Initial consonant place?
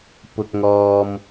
labial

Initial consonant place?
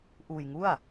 glottal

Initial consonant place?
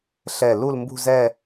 alveolar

